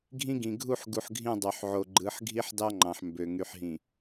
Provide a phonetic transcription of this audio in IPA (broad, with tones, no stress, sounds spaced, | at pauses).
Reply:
ɡʱ ĩ˦ ɡ ĩ˨ ɡʱ u˦˨ ħ ɡ u˨ ħ ɡʱ ĩ˦˨ dˤ ø˨ ħ ʕ o˨ ɡ͡ǃ ɯ˨˦ ħ ɡʱ i˦ ħ d ɑ˦ ŋ͡ǃ ɑ̃˨ ħ m b ø˨ ŋ y˨ ħ ɦ ĩ˨